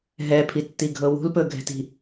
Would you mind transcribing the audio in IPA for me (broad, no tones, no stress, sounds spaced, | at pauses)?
ɦ ɛ pʰ i tː i ɡʱ ɤ w ṳ l p ɵ ɡʱ ɛ̤ t i̤